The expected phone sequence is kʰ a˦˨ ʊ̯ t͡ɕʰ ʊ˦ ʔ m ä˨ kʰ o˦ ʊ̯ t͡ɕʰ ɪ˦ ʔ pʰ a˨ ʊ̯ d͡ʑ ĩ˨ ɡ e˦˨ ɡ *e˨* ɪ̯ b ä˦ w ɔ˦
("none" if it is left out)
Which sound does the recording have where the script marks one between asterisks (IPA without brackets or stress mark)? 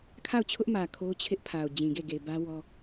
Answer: e˨